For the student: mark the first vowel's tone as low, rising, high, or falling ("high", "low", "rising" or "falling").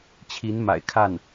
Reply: rising